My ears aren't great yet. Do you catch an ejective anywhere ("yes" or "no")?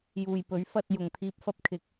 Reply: no